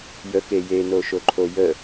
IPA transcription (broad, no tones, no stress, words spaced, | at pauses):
jəke jenoʃoǃʰo jə